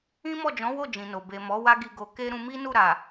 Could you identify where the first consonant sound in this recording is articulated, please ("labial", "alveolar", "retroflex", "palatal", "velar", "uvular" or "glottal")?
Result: labial